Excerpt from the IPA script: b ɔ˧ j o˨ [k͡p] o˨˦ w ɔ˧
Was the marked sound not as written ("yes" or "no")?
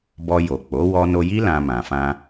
no